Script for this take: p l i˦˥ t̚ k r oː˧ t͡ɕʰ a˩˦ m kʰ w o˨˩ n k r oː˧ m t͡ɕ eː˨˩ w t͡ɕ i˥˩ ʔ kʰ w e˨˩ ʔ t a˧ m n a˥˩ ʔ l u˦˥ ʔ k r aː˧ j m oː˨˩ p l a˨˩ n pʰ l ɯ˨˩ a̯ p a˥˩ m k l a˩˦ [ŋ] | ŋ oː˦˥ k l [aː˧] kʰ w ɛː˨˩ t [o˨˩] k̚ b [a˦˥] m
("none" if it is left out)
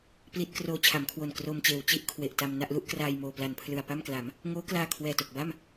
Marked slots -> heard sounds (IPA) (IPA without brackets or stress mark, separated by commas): m, aː˧, o˨˩, a˥˩